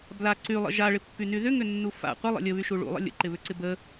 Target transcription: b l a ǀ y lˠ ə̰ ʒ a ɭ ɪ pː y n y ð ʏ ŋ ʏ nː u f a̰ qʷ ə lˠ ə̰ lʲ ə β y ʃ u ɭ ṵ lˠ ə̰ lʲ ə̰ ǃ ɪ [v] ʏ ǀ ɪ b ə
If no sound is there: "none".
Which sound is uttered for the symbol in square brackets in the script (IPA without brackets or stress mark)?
β